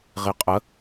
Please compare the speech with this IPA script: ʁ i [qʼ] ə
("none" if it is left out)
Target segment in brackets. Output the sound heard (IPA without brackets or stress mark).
qʼ